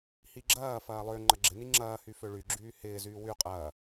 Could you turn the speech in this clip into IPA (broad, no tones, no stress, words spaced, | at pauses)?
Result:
hiɡ͡ǁɐːfɐː lˠø ŋ͡ǃɐɡ͡ǁɪni ŋ͡ǁɐːhy føɭyɡ͡ǁyː hɪːzyː wy qʼɐː